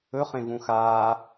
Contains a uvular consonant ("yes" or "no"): yes